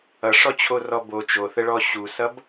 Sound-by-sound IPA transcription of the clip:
ʌ ʂ ɔ t͡ɕʰ o r ɔ b o t͡ʃ o θ ə ɭ ɔ ɕ u s ʌ b

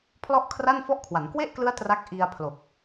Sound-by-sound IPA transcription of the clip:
pʰ l ɔ˥˩ ʔ kʰ r a˥˩ n f ɔ˥˩ ʔ kʰ w a˩˦ n k w e˥˩ ʔ k l ɯ˦˥ a̯ t r a˦˥ k̚ ʔ i˧ a̯ pʰ l o˨˩ k̚

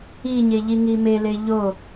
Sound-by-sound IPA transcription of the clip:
i ɲ e ʎ i ŋ i m e l e ʎ o

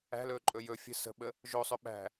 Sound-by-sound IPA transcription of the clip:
æ̤ l ɵː ǃʼ ɵ j ɵ fʲ ə̤ s ə̤ ɓ ə | ʒ o sˤ ɵ ɓ æ̤

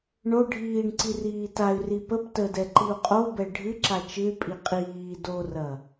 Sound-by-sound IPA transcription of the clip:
ɳ o ɖʱ iː ɳ ǀ i r iː t a y̯ r i p ə p t ə d ɛ ǃ i u̯ qʼ o b ɛ ɖʱ ɨ ǁ a t͡ʃ ɨ y̯ pʼ i qʼ iː d o r ɐ

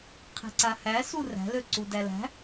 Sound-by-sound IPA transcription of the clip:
qʰ e̤ ǀ a h æ s u r æ̤ l ø ǀ u d æ l æ̤

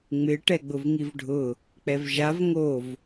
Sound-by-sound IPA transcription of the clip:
ŋ͡m ɪ ʈ ɛ ɡ͡b ʊ v ŋ i v ɖʱ ʊ | k͡p ɛ v ʒ a v ŋ o v

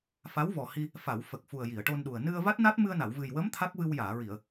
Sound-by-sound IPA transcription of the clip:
f a˧˥ w v ɔ˨˩ h i˧ | f a˨˩˨ w f ə˨˩ k̚ f u˨˩ ə̯ j i˨˩˨ ə̯ ʈ o˧ n ɗ u˨˩ ə̯ n ɨ˧ ə̯ v a˦˥ t̚ n a˦˥ t̚ m ɨ˧ ə̯ n a˨˩˨ w v ɨ˨˩ j w ə˧˥ m t̪ʰ a˦˥ k̚ v ɨ˧ w j aː˨˩˨ ɹ i˨˩˨ ə̯

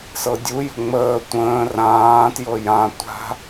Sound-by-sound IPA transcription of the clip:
s ɤ dʲ u j ə̤ ŋ͡m əː tʷ ə̃ː r ãː t j ɤ j ã tʷ a̤

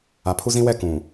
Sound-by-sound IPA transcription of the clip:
a˨ pʰ u˦ z ĩ˦ w ɛ˦˨ k ũ˨

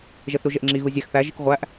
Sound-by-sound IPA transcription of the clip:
ʒ e θ ɾ u ʒ e ʔ ŋ͡ǁ i ɣ u zʲ æ x θ æ ʒ i k ʁʷ æ ʔ

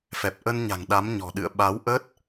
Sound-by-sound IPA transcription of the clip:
f ɛ˨˩ p̚ ʔ ə˧ n ɲ a̤˨˩ ŋ ɗ a˨˦ m ɲ ɔ̤˨˩ ɗ ɨ̰˧˨ ə̯ ɓ a˨˦ w ʔ əː˦˥ t̚

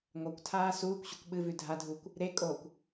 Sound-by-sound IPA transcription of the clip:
ŋʷ a kʷ tʰ aː s uː kʷ ɕ u kʷ ɓ ɨ v ʉ dʱ a dʱ uː kʷ | ɾ e kʼ oː kʷ

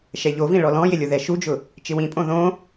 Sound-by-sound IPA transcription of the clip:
ʃ ɛ ʎ o v ĩ ɭ ɔ l ɔ̃ j ɪ lʲ ʊ ð ɛ ʃ u d͡ʒ ʊ | t͡ʃ ɪ w ĩ pʼ õ ð õ

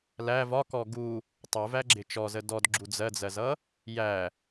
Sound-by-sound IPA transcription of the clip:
l æ v ɒ k ɔ ɡ u | tˤ u v æ ɡ͡ǁ ɪ t͡ʃ ɔ z ə d ɔ d ɡ͡ǁ u d͡z ɜ d͡z ɜ z ʌ | j æ

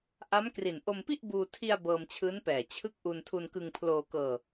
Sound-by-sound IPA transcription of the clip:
ʔ a˦˥ m k r i˨˩ n ʔ o˧ m p i˥˩ ʔ b uː˧ tʰ i˧ a̯ b ɤː˧ m t͡ɕʰ ɯː˦˥ n p ɛː˨˩ t͡ɕʰ ɯ˦˥ k̚ ʔ u˧ n tʰ u˧ n k ɯ˧ ŋ pʰ l oː˧ k ɤː˧

